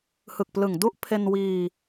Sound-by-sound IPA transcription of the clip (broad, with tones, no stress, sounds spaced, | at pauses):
h ɯ˨˩ k̚ p l ɯ˨˩ ŋ d u˥˩ ʔ pʰ e˧ n w iː˧